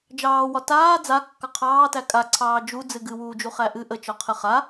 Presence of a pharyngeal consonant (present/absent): absent